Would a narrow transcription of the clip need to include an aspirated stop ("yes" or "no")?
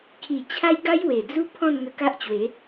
yes